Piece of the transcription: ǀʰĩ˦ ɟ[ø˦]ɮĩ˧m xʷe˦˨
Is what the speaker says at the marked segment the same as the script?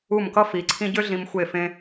yes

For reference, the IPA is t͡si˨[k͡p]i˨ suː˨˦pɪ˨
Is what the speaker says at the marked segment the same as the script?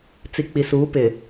yes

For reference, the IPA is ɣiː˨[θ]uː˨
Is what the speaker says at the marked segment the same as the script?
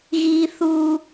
yes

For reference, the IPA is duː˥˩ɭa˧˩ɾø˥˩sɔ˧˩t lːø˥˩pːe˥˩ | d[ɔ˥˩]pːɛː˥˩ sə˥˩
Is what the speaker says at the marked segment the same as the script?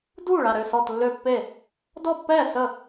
yes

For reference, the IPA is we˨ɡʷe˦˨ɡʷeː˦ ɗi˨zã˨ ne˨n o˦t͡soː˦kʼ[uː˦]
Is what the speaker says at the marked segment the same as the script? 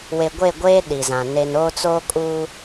yes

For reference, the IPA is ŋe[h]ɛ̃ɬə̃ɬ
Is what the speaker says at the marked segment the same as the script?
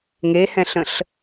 yes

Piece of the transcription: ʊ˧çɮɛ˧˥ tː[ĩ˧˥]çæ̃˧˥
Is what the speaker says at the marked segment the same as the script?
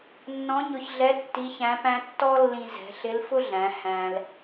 no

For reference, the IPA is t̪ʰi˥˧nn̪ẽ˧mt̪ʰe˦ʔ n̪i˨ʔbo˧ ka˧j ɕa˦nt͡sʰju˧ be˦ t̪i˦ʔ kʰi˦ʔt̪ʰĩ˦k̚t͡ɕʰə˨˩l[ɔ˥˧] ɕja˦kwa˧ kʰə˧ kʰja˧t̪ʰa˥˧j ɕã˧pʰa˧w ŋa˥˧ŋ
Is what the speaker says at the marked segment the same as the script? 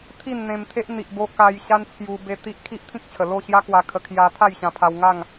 no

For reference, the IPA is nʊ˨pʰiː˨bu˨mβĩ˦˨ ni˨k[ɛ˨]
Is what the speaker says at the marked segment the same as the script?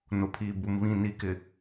no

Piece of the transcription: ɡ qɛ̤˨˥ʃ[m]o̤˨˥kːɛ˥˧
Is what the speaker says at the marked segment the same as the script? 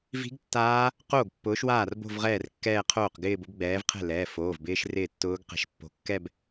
no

